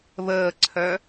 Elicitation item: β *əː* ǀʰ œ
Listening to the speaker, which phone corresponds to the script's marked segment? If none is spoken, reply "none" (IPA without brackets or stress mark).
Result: əː